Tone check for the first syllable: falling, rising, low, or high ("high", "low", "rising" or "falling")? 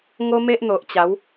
high